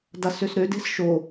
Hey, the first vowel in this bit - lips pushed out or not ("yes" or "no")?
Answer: no